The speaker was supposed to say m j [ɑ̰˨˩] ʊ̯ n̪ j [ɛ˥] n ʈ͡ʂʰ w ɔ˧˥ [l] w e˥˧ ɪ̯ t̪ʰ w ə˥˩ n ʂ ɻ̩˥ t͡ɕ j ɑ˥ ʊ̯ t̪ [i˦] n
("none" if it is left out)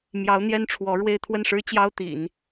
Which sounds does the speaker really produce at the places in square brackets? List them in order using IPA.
ɑ˧˥, ɛ˥, ɻ, ḭ˨˩˦

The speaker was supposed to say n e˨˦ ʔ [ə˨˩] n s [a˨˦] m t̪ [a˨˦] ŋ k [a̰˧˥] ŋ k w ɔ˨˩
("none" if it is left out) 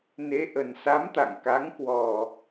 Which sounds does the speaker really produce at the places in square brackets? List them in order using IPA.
ə˨˩, a˨˦, a̰˧˨, a˨˦

